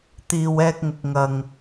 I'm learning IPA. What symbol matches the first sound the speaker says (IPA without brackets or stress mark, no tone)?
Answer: t̪